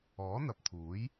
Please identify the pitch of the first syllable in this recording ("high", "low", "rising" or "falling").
rising